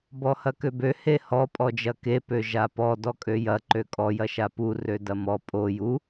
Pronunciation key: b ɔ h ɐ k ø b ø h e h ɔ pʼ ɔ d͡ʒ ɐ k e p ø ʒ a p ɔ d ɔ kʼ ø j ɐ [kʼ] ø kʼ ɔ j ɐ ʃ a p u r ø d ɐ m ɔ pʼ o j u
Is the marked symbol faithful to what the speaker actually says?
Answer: no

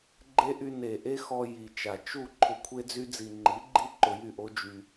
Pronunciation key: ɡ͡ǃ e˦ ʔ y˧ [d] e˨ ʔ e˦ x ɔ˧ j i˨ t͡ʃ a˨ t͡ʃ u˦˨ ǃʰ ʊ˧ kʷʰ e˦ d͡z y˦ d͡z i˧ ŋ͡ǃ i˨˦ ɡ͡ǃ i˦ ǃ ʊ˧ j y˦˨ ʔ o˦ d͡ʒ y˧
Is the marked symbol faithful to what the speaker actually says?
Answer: no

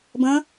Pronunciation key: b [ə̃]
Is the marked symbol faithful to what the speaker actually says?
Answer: yes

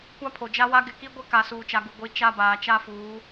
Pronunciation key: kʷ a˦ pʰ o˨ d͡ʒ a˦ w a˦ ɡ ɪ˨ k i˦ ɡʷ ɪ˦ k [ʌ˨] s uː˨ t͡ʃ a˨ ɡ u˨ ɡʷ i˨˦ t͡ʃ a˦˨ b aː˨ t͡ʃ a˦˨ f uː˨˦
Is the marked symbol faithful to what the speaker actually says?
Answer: no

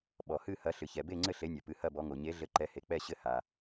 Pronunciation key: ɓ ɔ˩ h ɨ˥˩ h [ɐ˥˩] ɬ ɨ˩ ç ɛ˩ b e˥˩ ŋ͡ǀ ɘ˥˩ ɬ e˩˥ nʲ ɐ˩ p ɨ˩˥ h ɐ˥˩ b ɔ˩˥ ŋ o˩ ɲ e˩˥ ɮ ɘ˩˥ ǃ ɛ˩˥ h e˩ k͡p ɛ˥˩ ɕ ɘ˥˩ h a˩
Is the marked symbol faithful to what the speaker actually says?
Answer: no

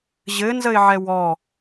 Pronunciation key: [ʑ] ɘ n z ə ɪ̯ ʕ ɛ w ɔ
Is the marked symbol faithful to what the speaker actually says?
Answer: yes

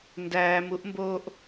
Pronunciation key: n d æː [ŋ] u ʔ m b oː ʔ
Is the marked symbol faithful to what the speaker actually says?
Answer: no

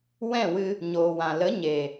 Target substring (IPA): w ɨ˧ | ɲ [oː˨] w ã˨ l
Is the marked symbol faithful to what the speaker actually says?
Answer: yes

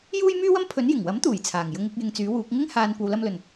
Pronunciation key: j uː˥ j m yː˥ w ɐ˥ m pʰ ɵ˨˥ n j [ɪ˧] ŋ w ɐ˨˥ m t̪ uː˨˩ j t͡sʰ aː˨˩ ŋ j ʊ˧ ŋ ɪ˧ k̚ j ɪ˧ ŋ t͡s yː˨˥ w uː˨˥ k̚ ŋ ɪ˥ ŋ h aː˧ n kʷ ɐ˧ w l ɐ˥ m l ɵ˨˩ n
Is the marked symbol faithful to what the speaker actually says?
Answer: no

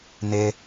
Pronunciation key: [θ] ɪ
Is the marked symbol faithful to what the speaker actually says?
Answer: no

